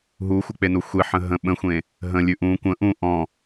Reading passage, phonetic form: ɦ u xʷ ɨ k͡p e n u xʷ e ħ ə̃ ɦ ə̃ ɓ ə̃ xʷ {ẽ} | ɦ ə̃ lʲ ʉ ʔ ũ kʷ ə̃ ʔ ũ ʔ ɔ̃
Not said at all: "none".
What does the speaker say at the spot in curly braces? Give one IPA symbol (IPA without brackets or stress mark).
ẽ